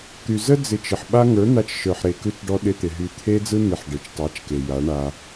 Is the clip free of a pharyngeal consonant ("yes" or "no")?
no